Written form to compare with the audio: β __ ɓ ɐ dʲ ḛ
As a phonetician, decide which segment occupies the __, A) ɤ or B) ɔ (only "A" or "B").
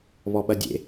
B